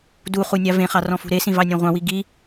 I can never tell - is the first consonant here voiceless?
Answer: no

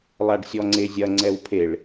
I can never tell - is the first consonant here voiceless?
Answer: no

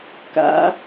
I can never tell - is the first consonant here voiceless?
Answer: yes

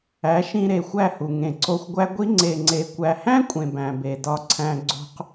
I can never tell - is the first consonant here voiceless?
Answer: yes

